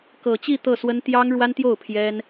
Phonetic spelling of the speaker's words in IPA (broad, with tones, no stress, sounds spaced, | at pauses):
k ɤ˨˩ t͡ɕ i˥˧ t̪ ɤ˥˩ s w ə˥ n t̪ j ɑ˥ ŋ ɻ w a˥ n t̪ j o˥˩ ʊ̯ pʰ j ɛ˥ n